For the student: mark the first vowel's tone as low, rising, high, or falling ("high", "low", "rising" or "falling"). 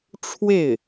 falling